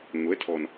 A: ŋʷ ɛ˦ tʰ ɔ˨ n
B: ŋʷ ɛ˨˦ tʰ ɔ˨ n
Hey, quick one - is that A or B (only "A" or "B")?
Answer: B